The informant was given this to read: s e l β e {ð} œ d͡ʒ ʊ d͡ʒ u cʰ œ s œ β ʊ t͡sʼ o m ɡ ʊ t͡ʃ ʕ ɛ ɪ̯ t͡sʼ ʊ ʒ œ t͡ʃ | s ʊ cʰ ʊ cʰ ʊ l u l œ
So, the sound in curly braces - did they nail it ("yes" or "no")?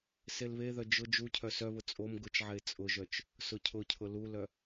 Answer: yes